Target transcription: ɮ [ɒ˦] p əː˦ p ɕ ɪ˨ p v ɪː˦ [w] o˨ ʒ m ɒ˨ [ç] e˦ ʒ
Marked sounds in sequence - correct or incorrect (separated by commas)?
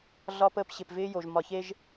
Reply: correct, incorrect, correct